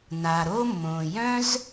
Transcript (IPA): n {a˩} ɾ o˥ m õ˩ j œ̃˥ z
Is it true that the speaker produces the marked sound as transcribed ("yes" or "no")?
yes